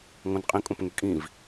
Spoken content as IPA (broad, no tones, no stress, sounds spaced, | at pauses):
ŋ õ n qʼ ĩ kʼ õ p ŋ y kʼ ĩ v